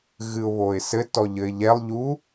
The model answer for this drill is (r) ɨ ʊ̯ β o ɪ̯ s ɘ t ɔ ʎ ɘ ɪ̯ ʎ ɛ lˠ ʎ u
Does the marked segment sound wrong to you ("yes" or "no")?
yes